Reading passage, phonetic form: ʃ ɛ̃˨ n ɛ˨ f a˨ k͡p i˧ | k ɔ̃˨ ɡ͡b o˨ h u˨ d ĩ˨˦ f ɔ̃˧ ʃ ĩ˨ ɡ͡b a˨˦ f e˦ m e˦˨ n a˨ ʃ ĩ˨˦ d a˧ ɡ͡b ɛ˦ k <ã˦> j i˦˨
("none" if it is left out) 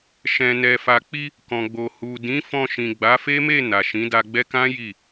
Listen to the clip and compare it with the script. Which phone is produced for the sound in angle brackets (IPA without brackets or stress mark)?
ã˦